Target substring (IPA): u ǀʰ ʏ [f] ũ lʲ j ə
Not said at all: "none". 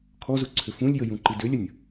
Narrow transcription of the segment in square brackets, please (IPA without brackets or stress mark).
f